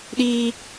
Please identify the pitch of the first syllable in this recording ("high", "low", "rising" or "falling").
high